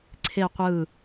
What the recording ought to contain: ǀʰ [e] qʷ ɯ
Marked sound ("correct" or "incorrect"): correct